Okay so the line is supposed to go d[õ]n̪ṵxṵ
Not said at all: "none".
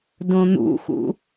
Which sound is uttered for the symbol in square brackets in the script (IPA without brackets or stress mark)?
õ